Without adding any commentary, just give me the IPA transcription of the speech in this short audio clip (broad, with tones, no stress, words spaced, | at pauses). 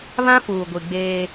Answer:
βã˦fuː˨ɡʷi˨ ɡ͡beː˦